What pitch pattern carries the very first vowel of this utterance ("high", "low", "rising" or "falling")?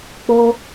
high